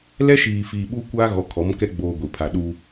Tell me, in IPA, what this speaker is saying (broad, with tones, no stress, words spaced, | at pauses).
lɛ˦ʃiː˨fiː˨ɓu˦ kʷaː˦ɣɔ˨kʰɔ˨˦mkɛ˦ ɡ͡boː˦ɡʷi˨ pʰa˨ɗu˦